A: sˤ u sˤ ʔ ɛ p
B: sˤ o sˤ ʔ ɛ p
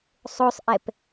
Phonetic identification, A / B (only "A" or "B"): B